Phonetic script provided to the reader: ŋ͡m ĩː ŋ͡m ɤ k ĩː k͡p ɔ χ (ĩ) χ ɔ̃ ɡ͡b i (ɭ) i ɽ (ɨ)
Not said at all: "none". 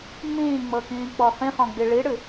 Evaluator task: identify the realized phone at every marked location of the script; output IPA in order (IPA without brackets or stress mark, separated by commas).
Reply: ĩ, ɭ, ɨ